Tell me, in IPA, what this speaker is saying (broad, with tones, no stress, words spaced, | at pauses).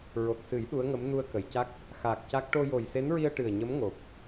ɹo˨˩k̚sɨ˨˩˦j ɗu˧˥ə̯ŋə˧˥m nu˧ə̯kə˨˩˨jca˦˥k̚ | xaː˨˩k̚ ca˦˥k̚ ʈo˧jo˨˩jse˧˥nɹi˧ə̯ ʈɨ˨˩ə̯ɲə˧˥mŋo˨˩p̚